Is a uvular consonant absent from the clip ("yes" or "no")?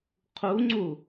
no